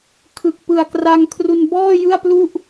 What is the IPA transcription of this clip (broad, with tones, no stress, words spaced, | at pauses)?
kʰɯ˨˩k̚ pɯ˨˩a̯kra˧ŋkʰru˧n bɔː˥˩jɯ˥˩a̯plu˥˩ʔ